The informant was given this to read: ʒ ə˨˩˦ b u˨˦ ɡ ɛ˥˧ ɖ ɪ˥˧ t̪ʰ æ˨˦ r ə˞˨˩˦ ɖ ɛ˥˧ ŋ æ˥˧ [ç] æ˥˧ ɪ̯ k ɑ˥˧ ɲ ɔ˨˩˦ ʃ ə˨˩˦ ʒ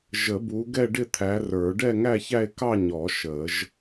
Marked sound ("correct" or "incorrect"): correct